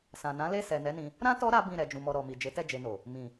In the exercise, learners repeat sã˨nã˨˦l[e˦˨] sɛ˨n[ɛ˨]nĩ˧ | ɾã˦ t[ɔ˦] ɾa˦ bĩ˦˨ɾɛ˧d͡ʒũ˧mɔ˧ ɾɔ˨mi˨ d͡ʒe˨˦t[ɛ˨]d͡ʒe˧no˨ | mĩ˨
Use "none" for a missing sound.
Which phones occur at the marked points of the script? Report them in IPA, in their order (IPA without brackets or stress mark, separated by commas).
e˦˨, ɛ˨˦, ɔ˦, ɛ˦˨